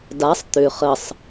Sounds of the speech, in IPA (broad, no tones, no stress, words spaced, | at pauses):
dasˤ t̪ʏ χəsˤ